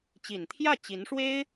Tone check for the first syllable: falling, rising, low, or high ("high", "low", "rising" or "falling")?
low